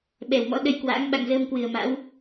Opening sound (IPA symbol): ɓ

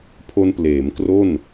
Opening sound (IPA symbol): pʰ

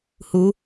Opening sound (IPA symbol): h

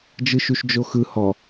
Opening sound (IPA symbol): d͡ʒ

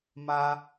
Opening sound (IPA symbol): m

